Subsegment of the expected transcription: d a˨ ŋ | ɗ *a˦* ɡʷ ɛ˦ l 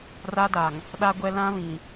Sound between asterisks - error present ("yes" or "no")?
no